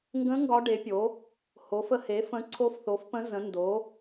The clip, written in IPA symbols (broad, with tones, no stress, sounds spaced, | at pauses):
ŋ ɡ ə̃˧˥ ŋ ɡ ɒ˧˥ ɖ e˩˥ pʲ o˩˥ | h o˩˥ f ə˧˥ h e˩˥ f ə̃˧˥ ǀʰ o˧˥ f θ o˩˥ f p ə̃˧˥ z ə̃˩˥ n d o˩˥